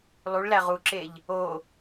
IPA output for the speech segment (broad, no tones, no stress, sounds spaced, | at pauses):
lˠ u ɭ l æ ʁ u ǁ e ʎ | o